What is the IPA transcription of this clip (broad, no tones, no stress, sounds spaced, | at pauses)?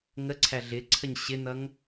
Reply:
ŋ ə ǀʰ æ ɮ ɪ ǀʰ ə ɲ ɕ ɪ n̪ ʌ ŋ